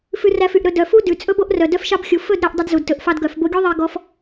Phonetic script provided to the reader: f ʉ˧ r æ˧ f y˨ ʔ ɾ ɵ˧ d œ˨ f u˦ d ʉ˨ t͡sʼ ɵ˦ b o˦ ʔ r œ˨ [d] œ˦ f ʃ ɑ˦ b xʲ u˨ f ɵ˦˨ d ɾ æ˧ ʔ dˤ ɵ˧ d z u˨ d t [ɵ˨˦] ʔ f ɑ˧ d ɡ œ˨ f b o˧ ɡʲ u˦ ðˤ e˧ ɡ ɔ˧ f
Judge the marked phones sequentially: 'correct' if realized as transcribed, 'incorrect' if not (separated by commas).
correct, incorrect